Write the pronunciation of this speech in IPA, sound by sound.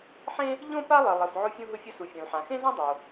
ħ ẽ˥ | ʎ õ˥ p a˥ lˠ ɘ˩ lˠ ɘ˩ f ʕ o˥ fʲ ũ˥ ɦ ʊ˥ fʲ ʊ˥ s u˩ fʲ õ˩ l ħ ã˩ x ẽ˥ z õ˥ dˤ o˩

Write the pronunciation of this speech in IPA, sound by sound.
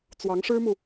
t͡s w ɑ˧˥ ŋ ʂ ɻ̩˥ m u˨

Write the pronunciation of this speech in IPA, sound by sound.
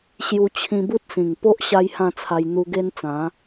ɕ j u˧ t͡ɕʰ ĩ˧ b u˦ t̚ s ĩ˨˩ ŋ p o˦ ʔ ɕ a˦ j h ã˥˧ t͡sʰ a˧ j n̪ u˧ ɡ e˦ n t͡s ã˨˦

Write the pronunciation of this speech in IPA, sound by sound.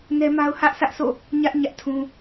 n ɛ˦ m a˦ ʊ̯ h ä˦ ʔ sʰ ä˦ ʔ sʰ o̰˦˨ | ɲ ä˦ ʔ ɲ ä˦ ʔ tʰ ũ˦

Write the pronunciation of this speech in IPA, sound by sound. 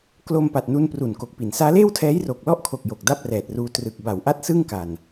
k l o˧ m p a˨˩ t̚ n u˧ n p r u˨˩ n k o˨˩ k̚ p i˩˦ n s aː˦˥ l eː˥˩ w tʰ ɛː˦˥ j r oː˨˩ k̚ l ɔ˥˩ ʔ kʰ o˨˩ k̚ j o˨˩ k̚ d a˥˩ p̚ r ɛː˨˩ t̚ r uː˧ t r ɯ˨˩ k̚ b a˩˦ w ʔ a˥˩ t̚ s ɯ˥˩ ŋ k a˨˩ n

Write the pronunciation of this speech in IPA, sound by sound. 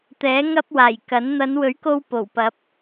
t̪ ɛː˨˥ ŋ ɐ˥ p̚ w aː˨˩ j k ɐ˨˥ n n̪ ɐ˨˧ n w ɵ˨˥ ɥ k o˧ w p o˨˩ w p ɐ˨˥ p̚

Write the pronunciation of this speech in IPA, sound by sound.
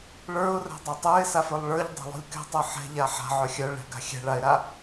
ɭ ə˞ ʊ̯ r ɛ̤ dˤ ɛ tˤ ə˞ ɪ̯ s a f ə˞ lˠ ɭ ə˞ ʎ dˤ a̤ lˠ o̤ lʲ k ɛ̤ tˤ ə˞ ħ ɛ̤ ʎ a ħ a̤ ʕ œ xʲ œ ɭ ɛ̤ ɡ a̤ xʲ ɛ̤ ɭ a ɪ̯ ɾ a

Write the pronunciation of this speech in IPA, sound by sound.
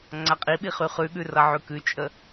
ŋ͡ǀ a qʼ i ɓ i χ y χ ʉ ɠ ʉ r ʌ ʕ ʉ k ʉ t͡ʃʼ ə

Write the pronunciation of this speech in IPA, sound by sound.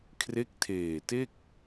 kʰ r e˦˥ k̚ tʰ eː˨˩ t e˥˩ k̚

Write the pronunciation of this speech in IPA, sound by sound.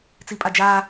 t͡s i pʼ a d͡ʒ aː

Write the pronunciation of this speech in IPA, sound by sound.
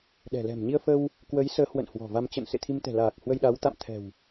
ɗ ɛ̤˨˩ l ɛ̤˨˩ m ɲ i˧ ə̯ f ə˧ w | k w ə˨˦ j s əː˨˦ h w ə̰˧˨ n h w ɔ̤˨˩ v a˧ m t͡ɕ ə̰˧˨ n s ḛ˧˨ t̪ʰ i˧ m t̪ ɛ̤˨˩ l aː˨˩ k̚ h w ə˧ j ɗ a˨˦ w t̪ a̰˧˨ m t̪ʰ ɛ̤˨˩ w

